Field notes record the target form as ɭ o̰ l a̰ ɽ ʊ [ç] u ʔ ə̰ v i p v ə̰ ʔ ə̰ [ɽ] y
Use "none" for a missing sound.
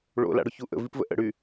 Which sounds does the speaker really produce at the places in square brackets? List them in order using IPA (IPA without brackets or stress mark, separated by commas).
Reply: ç, ɽ